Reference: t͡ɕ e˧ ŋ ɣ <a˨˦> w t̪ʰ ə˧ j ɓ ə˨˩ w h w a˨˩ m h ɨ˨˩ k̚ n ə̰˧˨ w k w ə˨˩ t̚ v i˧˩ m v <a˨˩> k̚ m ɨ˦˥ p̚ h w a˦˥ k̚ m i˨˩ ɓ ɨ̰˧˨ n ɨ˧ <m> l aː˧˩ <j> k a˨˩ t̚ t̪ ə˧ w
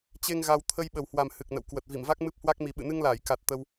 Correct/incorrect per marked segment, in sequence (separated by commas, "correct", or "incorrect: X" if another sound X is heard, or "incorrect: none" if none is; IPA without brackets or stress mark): incorrect: a˧, incorrect: a˦˥, incorrect: ŋ, correct